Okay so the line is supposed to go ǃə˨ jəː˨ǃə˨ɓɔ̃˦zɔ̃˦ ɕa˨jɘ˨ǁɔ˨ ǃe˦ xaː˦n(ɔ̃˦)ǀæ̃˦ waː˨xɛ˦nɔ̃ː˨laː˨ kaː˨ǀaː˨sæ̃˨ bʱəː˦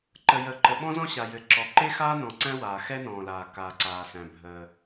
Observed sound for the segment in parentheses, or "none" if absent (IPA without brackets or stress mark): ɔ̃˨